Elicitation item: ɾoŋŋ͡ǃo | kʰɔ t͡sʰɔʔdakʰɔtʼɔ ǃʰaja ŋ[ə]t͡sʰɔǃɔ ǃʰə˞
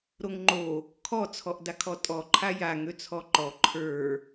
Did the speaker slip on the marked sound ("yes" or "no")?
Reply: yes